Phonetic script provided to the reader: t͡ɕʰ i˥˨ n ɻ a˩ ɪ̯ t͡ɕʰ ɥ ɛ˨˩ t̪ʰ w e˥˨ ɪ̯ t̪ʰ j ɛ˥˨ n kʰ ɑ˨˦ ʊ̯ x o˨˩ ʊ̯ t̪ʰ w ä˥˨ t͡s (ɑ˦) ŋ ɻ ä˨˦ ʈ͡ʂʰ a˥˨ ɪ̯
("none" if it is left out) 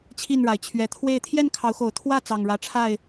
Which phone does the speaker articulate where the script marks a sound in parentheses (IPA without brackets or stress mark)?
ɑ˨˩